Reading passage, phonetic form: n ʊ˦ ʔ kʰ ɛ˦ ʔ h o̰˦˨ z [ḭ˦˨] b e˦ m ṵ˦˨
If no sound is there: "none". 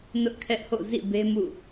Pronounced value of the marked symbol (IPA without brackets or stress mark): ḭ˦˨